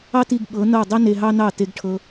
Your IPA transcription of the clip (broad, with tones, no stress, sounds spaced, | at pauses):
ɑ˦ t i˧ ɡ ɓ ɤ˨˦ n ɤ˦˨ dˤ i˦ n e˧ ɦ ɑ˦ n ɑ˦˨ t e˧ ɡ ʈʰ ɤ˧